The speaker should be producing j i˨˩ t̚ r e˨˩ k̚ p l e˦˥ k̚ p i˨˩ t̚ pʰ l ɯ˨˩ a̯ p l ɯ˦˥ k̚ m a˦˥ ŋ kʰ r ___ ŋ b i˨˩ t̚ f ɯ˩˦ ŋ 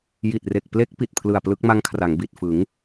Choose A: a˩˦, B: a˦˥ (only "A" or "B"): A